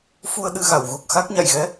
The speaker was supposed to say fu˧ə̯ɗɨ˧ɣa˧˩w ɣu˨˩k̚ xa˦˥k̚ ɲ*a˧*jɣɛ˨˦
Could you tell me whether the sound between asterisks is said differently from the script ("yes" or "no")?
yes